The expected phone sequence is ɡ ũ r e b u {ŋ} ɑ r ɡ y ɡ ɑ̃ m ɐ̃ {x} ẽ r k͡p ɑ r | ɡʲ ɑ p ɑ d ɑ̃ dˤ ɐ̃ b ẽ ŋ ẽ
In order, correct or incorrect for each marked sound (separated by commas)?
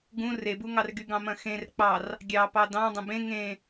correct, correct